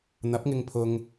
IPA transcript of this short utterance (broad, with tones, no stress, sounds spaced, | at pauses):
n̪ ɐ˨˥ p̚ ŋ ɪ˧ ŋ pʰ ʊ˧ ŋ